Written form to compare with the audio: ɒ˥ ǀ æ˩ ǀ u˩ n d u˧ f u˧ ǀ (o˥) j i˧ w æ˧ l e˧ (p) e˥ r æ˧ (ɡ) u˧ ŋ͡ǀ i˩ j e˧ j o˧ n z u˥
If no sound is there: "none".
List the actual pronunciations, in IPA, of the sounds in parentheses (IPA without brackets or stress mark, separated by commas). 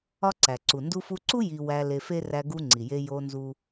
u˥, f, ɡ